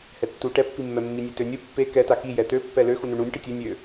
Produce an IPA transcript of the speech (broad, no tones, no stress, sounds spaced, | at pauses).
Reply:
h ɛ tː u ʈ ɛ pː i mː ɛ mː i nʲ e t ø nʲ u pː e k ɛ t a k i j ɛ t̪ ø pː ɛ l ø x u n u ɳ u nʲ ʈ i tʲ ø nʲ ø